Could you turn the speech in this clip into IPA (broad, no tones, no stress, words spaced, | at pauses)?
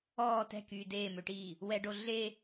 ɔː tɛ̤kyː deːmøʈiː | wɛɖo ɮe